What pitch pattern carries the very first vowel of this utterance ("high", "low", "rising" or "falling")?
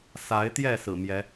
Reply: rising